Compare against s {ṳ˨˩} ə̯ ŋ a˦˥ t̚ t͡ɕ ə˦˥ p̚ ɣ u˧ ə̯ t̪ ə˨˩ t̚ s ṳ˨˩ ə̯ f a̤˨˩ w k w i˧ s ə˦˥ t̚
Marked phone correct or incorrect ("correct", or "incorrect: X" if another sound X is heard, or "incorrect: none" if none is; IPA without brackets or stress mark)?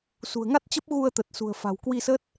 correct